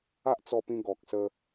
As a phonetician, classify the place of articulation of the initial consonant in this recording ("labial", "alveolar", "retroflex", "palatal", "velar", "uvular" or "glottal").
glottal